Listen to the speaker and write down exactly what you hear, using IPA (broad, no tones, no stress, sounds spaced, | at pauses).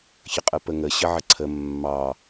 ç ə qʼ ə p ə ŋ ə ɕ ə ʕ ə ǀʰ ə mː ɑ